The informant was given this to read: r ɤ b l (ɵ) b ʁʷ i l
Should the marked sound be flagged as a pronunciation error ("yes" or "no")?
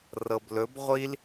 no